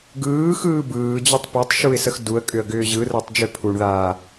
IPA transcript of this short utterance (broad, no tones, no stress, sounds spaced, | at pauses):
ɡ ɯː x ɯː b ɯː d͡ʑ ʏ tˤ p ɛ tˤ ʃ u ɪ̯ s ə x d u ə̯ kʼ ʏ ə̯ ɡ ʏː ʑ ɯ r əː tˤ d͡ʒ ø pʰ u ɳ ð aː